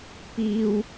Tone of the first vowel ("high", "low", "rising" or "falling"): high